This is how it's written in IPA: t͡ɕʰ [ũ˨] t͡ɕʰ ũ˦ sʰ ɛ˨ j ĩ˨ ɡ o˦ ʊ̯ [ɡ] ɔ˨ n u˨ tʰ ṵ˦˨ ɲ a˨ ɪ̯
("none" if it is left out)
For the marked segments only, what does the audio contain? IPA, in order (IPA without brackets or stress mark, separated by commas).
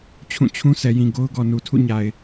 ũ˦˨, ɡ